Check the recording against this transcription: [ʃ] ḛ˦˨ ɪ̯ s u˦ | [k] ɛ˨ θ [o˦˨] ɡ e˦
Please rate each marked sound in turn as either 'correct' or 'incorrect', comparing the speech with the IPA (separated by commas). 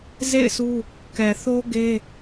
incorrect, correct, incorrect